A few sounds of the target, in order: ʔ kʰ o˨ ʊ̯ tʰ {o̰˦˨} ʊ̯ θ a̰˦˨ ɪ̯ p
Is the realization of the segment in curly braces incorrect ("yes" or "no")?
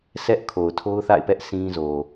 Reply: yes